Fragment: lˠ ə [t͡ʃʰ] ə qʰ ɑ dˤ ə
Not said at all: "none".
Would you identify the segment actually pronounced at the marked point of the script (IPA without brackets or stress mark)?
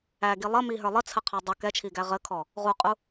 t͡sʰ